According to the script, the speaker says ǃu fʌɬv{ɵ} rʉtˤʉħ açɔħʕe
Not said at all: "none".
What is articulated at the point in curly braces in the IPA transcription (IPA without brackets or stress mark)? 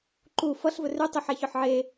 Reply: ɵ